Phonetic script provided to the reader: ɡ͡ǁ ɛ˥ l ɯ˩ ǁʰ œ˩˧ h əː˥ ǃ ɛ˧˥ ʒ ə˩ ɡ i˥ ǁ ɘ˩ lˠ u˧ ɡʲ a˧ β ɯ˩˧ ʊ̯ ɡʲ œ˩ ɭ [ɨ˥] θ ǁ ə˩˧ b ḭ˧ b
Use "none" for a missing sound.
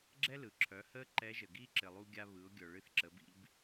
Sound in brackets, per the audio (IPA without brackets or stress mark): ɨ˧